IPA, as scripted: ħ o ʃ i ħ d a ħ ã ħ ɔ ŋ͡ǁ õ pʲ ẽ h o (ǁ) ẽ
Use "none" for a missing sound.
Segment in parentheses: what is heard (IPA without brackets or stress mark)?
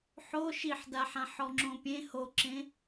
ǁ